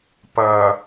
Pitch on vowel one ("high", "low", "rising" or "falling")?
low